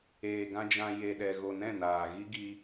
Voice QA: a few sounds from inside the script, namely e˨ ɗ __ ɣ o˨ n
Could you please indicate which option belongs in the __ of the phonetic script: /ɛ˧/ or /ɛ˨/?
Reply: ɛ˨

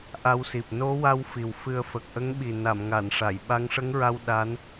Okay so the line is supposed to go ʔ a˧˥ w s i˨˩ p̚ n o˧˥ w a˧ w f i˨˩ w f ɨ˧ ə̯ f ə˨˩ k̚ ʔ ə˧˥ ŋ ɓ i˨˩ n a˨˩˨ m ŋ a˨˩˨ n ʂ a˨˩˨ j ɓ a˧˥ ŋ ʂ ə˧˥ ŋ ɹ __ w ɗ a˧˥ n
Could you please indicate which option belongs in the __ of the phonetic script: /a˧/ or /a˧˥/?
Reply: a˧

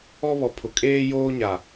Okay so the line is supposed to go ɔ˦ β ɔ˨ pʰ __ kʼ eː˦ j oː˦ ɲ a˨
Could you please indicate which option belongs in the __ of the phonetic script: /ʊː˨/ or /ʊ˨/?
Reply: ʊ˨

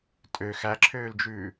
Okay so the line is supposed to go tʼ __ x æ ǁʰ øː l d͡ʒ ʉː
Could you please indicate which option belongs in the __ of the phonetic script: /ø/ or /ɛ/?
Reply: ø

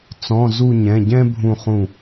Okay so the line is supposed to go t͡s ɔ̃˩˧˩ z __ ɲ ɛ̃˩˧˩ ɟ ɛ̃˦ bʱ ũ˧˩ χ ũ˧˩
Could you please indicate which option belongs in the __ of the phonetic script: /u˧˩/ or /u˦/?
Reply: u˧˩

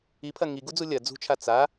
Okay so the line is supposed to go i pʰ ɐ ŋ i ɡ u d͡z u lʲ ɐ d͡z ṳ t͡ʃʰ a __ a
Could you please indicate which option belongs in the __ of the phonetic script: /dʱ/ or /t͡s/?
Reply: t͡s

